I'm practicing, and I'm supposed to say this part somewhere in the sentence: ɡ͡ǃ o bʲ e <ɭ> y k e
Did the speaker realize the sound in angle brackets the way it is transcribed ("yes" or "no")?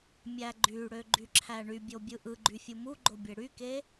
no